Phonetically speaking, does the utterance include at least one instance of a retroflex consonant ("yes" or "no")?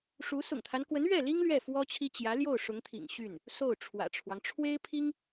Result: yes